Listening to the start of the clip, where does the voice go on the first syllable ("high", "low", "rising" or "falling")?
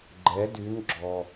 rising